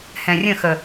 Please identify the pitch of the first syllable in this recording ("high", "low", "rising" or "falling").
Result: low